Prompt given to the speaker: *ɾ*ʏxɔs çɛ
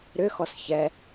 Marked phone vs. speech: correct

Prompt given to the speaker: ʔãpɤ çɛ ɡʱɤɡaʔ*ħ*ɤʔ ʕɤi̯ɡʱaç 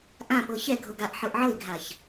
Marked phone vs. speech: correct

